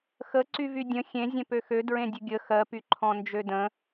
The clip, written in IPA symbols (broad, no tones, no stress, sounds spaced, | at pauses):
x ə ǀ y v y dʲ ə̃ xʲ ẽ zʲ ɛ̃ p ø x ø d ɹ ẽ dʲ ɵ ɡʲ ə x ɜ p y ǃʰ ɔ̃ n d͡ʒ ø d ə̃